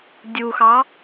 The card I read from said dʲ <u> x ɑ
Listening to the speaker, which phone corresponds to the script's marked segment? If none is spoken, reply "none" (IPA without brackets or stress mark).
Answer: u